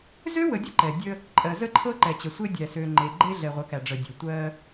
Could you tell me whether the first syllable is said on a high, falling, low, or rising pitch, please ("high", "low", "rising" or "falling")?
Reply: high